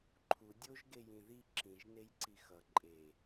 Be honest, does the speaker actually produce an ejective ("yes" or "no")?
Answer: yes